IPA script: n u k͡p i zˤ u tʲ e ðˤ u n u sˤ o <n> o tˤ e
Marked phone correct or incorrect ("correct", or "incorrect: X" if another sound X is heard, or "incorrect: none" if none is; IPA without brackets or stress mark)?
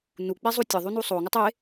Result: incorrect: ŋ